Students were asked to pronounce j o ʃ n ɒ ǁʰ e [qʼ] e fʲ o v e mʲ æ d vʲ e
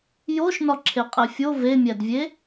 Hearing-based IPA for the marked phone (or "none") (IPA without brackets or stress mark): qʼ